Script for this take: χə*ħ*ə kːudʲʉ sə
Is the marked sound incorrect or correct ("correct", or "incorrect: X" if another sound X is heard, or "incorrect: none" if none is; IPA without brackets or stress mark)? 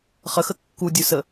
incorrect: x